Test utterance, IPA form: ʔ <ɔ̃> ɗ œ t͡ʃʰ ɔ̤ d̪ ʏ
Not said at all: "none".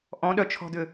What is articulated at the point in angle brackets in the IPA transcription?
ɔ̃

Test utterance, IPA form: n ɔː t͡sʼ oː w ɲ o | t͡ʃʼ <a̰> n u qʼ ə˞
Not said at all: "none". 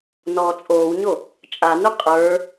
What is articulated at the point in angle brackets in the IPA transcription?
a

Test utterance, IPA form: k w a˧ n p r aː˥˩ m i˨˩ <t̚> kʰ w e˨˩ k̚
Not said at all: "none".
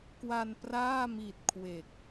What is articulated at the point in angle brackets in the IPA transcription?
t̚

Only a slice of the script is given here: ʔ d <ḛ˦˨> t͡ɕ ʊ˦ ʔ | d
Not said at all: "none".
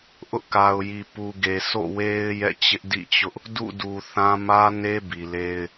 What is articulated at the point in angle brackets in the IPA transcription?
ḭ˦˨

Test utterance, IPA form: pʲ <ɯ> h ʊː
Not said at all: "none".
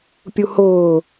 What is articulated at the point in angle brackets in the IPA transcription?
u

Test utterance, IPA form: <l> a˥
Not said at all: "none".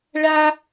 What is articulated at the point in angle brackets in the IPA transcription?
ɭ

